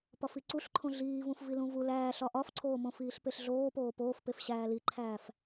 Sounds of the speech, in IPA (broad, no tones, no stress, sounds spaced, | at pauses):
p ɒ f i ǀ u ɬ ǃʰ õ ɮ iː v ũ f v i l ũ v u l æː ɬ ɒ ʔ ɒ f ǀʰ oː m õ f iː ɬ p e ɬ ɮ oː p oː p oː f p e f ɕ æː l i ǃʰ æː f